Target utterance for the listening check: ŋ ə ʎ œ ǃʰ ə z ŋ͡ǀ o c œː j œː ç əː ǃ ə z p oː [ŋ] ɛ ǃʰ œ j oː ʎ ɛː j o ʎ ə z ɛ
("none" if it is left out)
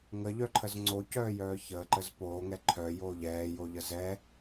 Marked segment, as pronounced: ŋ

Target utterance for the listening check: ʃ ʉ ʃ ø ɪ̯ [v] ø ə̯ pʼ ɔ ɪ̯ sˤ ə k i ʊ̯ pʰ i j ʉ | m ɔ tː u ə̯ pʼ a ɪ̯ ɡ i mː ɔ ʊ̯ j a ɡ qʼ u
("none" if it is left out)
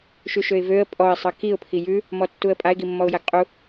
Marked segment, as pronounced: v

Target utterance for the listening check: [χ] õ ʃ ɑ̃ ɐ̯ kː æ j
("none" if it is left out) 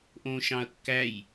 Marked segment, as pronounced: ʔ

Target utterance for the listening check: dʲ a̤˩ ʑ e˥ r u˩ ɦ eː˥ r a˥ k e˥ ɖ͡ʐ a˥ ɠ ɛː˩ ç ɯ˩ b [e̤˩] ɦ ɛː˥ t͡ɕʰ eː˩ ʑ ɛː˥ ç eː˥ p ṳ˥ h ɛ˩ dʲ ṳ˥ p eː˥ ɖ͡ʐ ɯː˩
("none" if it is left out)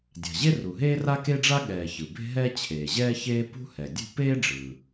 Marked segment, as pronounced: e̤˥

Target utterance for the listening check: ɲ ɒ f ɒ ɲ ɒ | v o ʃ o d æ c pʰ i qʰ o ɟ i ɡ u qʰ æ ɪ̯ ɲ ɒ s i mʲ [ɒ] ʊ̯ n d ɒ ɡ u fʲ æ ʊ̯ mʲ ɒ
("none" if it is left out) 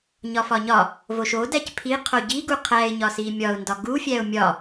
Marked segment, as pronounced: ɒ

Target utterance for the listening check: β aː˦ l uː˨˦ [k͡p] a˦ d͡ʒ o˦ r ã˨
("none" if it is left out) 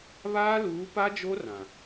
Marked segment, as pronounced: p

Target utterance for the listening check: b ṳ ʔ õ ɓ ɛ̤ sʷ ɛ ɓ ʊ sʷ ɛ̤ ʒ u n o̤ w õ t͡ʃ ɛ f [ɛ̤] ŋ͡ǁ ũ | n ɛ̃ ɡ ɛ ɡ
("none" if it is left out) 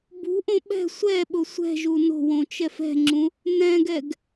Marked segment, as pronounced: ɛ̤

